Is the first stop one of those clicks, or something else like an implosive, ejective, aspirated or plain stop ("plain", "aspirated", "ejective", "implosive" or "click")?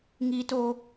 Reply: plain